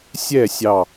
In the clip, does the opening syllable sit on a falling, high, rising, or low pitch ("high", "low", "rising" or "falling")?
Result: falling